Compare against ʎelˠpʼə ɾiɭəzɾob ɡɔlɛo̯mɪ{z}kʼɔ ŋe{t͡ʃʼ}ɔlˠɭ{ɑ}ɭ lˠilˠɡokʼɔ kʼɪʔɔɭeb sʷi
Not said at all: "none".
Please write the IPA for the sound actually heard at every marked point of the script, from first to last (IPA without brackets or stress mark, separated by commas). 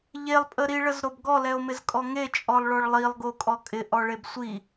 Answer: z, t͡ʃʼ, ɔ